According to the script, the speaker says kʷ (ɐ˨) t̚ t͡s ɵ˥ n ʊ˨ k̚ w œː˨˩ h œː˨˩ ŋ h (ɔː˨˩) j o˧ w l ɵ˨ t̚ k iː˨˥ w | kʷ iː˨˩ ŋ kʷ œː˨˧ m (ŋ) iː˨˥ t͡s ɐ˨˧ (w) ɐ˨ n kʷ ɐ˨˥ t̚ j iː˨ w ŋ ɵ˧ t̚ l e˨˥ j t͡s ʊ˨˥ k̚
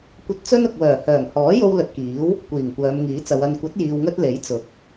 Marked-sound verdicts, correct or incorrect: incorrect: ɐ˧, incorrect: ɔː˨˥, correct, correct

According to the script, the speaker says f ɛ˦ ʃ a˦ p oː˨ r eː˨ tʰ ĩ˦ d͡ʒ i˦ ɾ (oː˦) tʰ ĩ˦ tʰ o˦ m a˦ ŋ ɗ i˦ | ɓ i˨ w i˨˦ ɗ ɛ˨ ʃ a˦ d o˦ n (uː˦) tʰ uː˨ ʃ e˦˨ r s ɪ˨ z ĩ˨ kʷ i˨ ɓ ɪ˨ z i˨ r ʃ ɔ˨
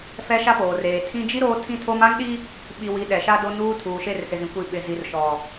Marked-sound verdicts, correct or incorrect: correct, correct

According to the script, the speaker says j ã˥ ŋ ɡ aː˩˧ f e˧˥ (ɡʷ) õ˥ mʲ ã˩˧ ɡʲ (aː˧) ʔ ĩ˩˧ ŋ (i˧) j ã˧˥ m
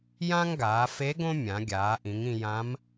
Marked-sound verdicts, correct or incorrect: incorrect: ɡ, incorrect: aː˩˧, incorrect: ĩ˧

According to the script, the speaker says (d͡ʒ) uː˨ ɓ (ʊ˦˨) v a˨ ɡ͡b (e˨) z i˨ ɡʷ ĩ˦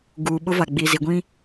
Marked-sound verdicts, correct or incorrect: incorrect: ɡ, incorrect: ʊ˦, incorrect: i˨

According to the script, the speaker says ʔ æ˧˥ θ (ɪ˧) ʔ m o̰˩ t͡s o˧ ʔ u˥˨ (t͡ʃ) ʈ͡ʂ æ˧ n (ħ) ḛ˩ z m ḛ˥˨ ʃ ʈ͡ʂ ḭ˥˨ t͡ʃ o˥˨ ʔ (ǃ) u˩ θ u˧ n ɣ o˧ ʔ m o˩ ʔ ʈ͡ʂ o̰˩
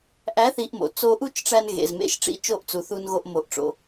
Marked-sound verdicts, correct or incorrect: incorrect: i˧, correct, incorrect: ɣ, incorrect: t͡s

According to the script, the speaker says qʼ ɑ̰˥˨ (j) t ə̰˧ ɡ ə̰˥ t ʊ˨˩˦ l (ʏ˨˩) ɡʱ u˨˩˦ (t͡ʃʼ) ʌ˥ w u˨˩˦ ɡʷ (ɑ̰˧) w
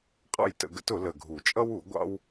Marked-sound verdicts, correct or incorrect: correct, incorrect: ə˨˩, correct, incorrect: ɑ̰˥

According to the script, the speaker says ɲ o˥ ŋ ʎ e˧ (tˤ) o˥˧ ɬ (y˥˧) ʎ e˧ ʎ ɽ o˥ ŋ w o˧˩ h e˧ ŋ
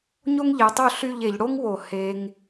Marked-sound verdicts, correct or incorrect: correct, correct

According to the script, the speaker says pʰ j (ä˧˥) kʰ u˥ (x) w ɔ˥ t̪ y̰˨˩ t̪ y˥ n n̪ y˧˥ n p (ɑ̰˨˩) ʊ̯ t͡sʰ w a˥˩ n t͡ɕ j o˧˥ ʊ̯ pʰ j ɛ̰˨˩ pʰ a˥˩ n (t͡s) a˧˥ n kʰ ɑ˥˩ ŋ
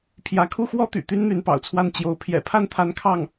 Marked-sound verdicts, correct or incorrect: correct, correct, correct, incorrect: t̪ʰ

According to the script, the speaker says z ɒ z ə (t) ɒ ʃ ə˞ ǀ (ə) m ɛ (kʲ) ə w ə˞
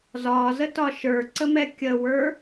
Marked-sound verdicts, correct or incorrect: correct, correct, correct

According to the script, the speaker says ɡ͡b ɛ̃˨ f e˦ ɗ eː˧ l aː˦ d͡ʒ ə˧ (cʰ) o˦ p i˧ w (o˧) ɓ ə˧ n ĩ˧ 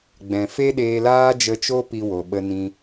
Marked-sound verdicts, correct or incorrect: incorrect: t͡ʃ, incorrect: o˨

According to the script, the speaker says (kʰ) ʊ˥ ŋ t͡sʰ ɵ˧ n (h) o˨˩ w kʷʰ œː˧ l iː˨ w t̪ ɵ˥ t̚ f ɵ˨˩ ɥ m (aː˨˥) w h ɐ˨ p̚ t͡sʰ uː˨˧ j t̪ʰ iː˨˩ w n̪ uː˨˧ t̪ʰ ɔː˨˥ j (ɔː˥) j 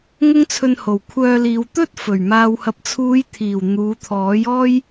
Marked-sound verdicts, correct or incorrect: incorrect: ŋ, correct, incorrect: aː˨, correct

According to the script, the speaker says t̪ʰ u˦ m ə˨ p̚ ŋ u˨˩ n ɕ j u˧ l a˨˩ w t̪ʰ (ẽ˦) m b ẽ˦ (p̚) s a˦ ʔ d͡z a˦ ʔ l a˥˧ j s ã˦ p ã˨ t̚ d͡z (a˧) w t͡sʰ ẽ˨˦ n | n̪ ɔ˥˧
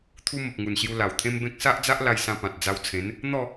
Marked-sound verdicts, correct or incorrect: correct, incorrect: k̚, correct

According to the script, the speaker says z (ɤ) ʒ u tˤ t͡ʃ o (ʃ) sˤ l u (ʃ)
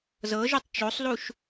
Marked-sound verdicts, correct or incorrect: correct, incorrect: none, correct

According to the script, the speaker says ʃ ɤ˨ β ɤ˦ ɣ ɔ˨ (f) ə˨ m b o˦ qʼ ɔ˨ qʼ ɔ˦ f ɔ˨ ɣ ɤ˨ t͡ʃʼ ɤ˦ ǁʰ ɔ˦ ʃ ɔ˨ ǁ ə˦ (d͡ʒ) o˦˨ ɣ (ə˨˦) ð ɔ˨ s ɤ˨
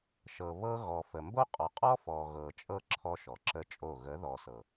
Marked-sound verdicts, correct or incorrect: correct, incorrect: t͡ʃʼ, correct

